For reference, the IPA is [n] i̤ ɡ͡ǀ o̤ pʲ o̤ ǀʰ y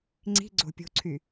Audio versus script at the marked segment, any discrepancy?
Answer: yes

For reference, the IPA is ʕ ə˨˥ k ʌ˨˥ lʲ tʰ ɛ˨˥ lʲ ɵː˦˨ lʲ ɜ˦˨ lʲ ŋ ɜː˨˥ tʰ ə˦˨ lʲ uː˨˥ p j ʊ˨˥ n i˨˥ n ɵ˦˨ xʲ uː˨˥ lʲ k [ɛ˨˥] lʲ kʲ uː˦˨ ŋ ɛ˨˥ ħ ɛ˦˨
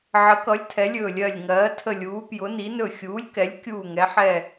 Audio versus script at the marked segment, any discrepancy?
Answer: no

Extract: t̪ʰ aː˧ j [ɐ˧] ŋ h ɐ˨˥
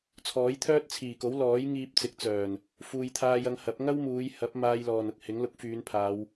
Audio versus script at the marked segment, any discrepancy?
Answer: no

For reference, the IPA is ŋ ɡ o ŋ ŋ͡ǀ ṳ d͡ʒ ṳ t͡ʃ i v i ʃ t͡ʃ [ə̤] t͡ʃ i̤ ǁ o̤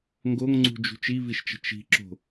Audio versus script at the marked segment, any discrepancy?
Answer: no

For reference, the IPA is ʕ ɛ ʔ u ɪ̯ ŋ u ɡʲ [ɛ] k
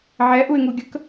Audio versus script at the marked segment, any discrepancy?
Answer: yes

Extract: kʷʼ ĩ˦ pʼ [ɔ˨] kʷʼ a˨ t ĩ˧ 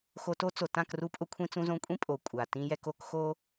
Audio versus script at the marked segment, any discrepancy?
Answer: yes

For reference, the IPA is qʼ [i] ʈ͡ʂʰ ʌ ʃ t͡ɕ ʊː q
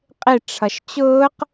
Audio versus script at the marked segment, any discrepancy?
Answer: yes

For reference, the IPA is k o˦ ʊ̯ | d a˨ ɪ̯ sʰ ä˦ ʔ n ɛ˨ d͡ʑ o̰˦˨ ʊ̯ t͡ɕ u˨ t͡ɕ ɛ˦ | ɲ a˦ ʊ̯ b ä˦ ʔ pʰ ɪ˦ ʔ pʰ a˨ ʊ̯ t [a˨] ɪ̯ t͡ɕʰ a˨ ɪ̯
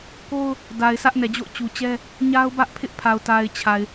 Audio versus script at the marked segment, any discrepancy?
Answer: no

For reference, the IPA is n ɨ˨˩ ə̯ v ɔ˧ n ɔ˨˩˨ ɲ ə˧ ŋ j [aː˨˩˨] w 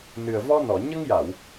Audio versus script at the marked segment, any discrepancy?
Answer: yes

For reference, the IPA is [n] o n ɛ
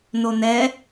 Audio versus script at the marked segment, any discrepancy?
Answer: no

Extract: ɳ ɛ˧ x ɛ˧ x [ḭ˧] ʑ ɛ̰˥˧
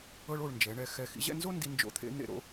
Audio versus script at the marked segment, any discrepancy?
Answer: no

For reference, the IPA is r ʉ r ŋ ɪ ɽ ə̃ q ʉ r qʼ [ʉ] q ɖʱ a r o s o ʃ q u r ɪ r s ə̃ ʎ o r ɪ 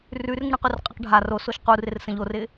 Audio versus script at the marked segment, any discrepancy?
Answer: yes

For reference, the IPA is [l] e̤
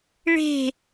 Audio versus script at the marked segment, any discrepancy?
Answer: yes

